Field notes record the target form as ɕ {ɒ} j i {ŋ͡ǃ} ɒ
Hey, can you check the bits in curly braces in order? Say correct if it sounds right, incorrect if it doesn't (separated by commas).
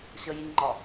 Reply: incorrect, correct